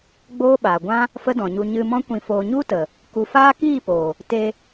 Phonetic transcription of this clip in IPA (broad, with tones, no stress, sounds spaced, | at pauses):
ɡ͡b oː˦ ɓ aː˨ ɡʷ ã˦ | f ə˦ d ɔ̃˨ ɲ u˧ ɲ ɨ˧ m ɔ̃˦ kʷ ĩ˧ f oː˧ ɲ u˦ t ə˨ | k u˧ f aː˦ k iː˦˨ p oː˨ | t e˧